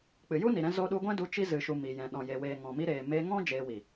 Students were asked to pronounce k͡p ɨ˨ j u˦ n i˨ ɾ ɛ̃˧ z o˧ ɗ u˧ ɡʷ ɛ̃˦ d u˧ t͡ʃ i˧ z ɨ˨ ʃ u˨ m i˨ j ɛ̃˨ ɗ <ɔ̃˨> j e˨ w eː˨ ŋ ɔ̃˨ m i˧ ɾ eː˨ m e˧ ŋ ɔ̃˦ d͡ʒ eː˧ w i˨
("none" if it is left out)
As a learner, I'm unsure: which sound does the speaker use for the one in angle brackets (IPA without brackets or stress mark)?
ɔ̃˨